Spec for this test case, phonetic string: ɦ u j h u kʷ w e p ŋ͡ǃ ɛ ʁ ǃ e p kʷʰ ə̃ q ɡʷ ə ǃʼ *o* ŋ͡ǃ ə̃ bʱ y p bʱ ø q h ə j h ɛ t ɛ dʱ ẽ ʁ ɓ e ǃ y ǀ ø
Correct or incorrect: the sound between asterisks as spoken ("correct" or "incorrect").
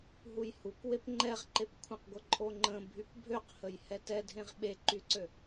correct